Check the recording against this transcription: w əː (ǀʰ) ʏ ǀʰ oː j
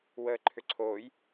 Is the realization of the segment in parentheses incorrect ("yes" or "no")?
yes